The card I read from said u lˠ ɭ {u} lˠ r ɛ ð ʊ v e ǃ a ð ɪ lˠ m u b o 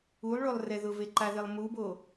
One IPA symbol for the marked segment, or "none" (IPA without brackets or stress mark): o